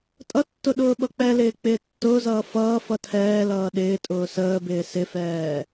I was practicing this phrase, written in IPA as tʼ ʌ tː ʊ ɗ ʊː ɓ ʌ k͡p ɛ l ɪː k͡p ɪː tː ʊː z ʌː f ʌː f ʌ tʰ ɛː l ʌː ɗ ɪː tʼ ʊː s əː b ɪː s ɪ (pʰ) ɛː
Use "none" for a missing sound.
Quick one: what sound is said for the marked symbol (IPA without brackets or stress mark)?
f